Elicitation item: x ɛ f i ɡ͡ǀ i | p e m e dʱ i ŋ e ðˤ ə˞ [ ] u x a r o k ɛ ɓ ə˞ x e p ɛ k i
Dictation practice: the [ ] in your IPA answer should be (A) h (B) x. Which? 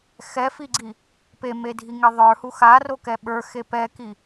A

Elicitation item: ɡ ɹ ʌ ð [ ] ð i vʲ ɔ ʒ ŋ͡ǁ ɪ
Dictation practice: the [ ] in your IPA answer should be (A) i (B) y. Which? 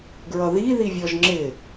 A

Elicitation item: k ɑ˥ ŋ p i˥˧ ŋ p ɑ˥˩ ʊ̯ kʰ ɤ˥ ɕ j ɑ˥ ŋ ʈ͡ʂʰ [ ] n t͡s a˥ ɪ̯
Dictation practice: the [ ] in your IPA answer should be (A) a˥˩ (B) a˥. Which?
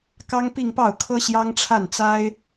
A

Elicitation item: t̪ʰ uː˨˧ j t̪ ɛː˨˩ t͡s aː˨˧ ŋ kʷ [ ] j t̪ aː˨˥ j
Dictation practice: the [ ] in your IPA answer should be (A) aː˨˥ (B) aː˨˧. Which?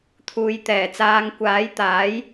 A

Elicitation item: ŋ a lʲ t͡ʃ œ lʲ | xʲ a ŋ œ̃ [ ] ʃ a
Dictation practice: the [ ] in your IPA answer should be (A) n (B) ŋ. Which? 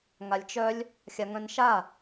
A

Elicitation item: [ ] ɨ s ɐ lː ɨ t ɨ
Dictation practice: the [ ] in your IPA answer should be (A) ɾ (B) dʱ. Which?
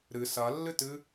A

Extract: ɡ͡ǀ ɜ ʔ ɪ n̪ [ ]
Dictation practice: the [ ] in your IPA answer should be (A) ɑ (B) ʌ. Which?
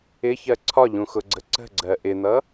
B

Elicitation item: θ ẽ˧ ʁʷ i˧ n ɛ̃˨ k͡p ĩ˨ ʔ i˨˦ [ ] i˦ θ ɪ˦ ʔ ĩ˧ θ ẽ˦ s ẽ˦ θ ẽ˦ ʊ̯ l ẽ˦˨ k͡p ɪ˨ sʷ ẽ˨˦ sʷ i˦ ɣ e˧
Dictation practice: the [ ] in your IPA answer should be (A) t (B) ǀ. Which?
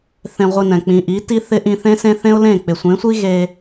A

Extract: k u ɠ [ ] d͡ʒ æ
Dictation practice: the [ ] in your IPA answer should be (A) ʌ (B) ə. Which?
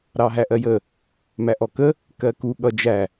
A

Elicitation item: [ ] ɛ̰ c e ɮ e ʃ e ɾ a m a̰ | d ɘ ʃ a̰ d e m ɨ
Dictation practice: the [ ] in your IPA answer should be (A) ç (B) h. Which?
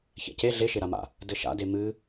A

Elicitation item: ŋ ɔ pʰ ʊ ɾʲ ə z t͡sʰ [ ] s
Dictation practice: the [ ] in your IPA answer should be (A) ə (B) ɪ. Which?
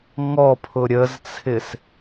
B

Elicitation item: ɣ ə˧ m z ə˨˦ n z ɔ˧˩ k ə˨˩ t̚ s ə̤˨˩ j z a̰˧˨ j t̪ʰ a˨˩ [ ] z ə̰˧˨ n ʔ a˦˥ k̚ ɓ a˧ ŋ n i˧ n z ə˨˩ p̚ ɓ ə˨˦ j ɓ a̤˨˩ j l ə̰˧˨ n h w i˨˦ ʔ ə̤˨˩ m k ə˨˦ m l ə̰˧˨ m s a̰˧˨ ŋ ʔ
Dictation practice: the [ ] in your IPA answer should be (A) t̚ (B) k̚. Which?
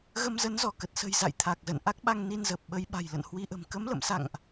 B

